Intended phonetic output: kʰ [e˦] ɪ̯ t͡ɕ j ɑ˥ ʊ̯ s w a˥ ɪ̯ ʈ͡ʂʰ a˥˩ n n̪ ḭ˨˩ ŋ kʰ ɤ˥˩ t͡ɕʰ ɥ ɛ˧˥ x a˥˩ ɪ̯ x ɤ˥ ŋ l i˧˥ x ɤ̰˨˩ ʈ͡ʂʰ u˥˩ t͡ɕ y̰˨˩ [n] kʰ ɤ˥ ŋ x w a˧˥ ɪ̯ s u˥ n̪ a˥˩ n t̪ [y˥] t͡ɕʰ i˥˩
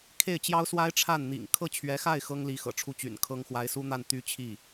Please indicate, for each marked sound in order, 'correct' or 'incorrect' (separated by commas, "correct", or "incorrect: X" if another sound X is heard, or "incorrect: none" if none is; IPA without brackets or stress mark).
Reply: incorrect: e˥˩, correct, correct